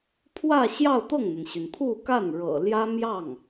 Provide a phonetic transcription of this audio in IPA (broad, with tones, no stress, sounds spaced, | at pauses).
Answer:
pʰ w ä˥˧ ɕ j ɑ˥˧ ʊ̯ t̪ ɤ˥˩ ŋ n̪ ə˩ n ɕ y˩ n pʰ u˥˧ k a˥˩ n ɻ ɤ̰˨˩ l j ä˥ m j ɑ˥˩ ŋ